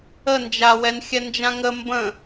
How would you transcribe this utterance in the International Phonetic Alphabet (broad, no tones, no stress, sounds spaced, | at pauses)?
ə n d͡ʒ a w ɛ n xʲ ɛ n d͡ʒ ã ŋ ə m b ə̃